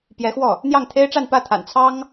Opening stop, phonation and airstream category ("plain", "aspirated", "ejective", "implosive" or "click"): plain